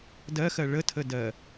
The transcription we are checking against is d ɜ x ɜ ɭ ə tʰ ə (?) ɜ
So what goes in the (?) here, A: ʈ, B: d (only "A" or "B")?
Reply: B